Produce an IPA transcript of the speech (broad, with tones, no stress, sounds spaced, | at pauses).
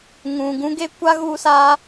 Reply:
ŋ ũ˨ ɡ ũ˦ ɡ e˦ kʷ a˦ ɣ u˧ s aː˧